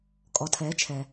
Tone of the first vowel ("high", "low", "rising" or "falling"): low